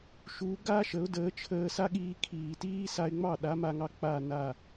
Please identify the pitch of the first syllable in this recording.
rising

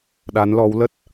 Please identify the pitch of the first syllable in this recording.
rising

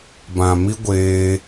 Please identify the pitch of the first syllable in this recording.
low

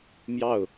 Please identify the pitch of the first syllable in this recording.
falling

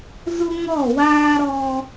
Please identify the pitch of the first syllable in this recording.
high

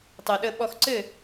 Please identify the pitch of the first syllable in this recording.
low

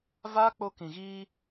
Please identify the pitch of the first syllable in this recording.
high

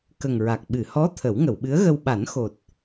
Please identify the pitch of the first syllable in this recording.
low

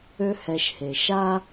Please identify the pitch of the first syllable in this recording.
high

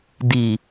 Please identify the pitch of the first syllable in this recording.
low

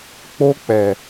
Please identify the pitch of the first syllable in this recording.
high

